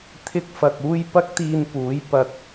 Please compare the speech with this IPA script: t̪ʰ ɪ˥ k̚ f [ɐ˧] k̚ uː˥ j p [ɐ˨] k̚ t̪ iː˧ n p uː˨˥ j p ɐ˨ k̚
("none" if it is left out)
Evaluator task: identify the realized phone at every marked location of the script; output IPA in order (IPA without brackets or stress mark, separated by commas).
ɐ˧, ɐ˥